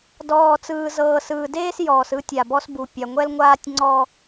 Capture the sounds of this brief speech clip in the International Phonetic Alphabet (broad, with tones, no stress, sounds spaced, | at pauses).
d ɔː˨ t͡s ɯː˨ z ɤː˨ s ɯː˨ d eː˦ s j ɔː˨ s ɯ˦ tʲ a˨ b ɔ˦ s b u˨ pʲ a˨ ŋʷ ɛ˦ l ŋʷ aː˦ tʲ ŋ͡ǀ ɔ˦